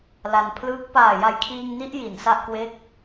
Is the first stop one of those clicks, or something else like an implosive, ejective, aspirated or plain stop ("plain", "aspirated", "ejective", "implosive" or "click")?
aspirated